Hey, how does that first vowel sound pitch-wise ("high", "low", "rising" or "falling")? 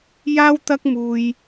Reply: high